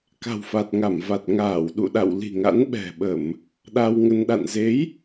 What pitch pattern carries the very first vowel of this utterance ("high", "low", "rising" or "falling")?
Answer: low